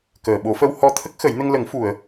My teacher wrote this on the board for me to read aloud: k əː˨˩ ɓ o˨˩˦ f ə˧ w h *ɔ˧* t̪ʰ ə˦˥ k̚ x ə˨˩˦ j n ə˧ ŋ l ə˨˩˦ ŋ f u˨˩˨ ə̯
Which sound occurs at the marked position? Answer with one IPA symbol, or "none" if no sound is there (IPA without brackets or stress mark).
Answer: ɔ˧